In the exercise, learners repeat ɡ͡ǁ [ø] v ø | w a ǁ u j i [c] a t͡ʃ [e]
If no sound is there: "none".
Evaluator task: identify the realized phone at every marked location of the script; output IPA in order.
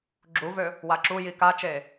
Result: u, k, e

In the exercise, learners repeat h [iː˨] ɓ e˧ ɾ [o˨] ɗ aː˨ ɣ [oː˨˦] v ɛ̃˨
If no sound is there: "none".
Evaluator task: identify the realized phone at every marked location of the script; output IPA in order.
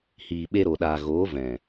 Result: iː˨, o˨, oː˨˦

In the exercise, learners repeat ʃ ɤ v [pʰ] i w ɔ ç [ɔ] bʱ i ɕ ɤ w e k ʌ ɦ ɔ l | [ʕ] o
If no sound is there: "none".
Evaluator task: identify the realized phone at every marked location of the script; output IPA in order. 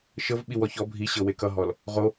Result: ɓ, ɔ, ʁ

